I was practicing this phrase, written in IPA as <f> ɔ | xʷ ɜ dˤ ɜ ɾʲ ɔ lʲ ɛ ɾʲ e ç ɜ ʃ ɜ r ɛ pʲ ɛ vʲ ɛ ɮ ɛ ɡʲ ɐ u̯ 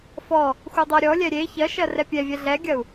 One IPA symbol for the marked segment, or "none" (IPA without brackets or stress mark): f